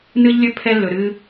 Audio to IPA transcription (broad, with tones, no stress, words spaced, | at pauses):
nɨ˦ʎlʲɵ˦ pʰɛ˦lːɵ˨ɾɨ˦